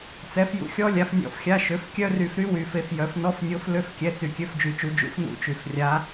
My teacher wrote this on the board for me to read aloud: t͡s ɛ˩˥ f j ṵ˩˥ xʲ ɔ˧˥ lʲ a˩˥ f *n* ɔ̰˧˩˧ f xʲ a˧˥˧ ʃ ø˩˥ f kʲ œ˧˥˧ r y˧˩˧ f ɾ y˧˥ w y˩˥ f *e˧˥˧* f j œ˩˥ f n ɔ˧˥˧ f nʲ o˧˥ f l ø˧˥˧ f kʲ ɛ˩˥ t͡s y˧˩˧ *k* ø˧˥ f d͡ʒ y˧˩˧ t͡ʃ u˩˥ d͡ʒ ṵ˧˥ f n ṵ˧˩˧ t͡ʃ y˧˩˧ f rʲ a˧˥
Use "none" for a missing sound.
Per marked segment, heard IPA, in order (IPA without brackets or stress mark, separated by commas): nʲ, e˧˥, kʲ